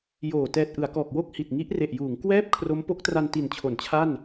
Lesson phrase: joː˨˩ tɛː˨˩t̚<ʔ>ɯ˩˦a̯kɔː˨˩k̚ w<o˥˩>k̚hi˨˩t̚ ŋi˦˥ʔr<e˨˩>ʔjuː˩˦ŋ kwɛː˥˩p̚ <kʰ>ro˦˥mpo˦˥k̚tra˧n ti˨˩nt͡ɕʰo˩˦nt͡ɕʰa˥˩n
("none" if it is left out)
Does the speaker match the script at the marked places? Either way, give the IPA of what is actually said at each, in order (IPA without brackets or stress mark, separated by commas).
ʔ, o˥˩, e˨˩, kʰ